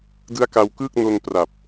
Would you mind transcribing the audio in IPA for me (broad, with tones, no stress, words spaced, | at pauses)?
dɯ˦˥a̯ka˧wkɯː˥˩k̚ no˧n pra˨˩p̚